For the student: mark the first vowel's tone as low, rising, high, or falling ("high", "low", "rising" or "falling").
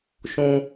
high